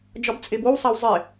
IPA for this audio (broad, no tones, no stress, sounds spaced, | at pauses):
d͡ʒ ɒ b t͡sʼ e b o w sˤ æ w zˤ e